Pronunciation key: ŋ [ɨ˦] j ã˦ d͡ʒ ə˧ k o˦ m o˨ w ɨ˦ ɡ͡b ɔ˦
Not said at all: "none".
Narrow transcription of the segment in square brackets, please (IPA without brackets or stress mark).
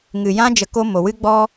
ɨ˨